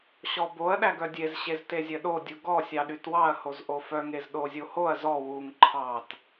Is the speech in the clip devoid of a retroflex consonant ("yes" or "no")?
yes